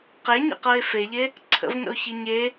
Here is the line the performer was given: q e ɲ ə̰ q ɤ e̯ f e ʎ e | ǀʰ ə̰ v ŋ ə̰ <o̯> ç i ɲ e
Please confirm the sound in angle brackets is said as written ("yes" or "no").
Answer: yes